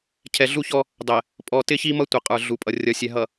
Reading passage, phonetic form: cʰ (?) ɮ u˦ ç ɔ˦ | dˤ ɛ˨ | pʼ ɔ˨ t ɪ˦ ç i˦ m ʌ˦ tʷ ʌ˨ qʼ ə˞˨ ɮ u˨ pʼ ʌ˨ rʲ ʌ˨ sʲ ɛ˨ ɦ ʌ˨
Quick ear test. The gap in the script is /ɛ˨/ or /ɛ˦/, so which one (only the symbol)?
ɛ˨